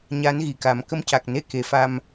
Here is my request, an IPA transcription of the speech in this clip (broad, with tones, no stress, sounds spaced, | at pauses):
ɲ a˧˥ n ɣ i˨˩ k a˨˩˦ m k ə˧ m c a˨˩ k̚ n e˧ k e˨˩˨ f a˧ m